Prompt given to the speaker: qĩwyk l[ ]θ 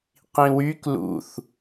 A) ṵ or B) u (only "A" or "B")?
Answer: A